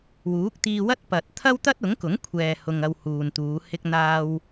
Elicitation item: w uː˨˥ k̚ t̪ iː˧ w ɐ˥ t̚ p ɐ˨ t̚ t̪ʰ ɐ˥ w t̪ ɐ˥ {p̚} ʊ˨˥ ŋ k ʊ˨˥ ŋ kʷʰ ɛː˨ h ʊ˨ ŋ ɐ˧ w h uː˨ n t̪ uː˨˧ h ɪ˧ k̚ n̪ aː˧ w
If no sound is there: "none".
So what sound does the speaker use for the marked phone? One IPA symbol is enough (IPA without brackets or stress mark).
t̚